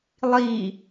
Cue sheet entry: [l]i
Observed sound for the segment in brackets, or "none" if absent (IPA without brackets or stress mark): lˠ